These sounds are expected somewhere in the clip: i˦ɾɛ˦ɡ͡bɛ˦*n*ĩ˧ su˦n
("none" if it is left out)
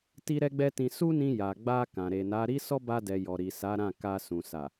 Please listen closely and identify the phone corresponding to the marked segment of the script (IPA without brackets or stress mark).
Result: t